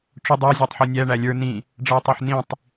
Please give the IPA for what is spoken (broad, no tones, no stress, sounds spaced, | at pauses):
ʈ͡ʂ ʊ dˤ æ zʲ ɑ tˤ ħ ɔ nʲ æ ɳ æ lʲ ə˞ n ĩ | ɖ͡ʐ ʌ ɪ̯ tˤ ə˞ ħ n ĩ tˤ